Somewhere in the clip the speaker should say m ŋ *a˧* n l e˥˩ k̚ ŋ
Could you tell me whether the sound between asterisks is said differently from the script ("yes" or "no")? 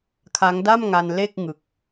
no